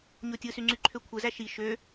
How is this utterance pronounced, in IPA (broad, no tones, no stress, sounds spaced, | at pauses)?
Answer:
ɲ o tʲ ɯ s y ŋ͡ǀ y ǃʰ ø kʷʰ ɯ z æ ʃ i ʃ ø